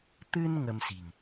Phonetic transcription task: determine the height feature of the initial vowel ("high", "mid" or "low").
high